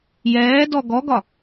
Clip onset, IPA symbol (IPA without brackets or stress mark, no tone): j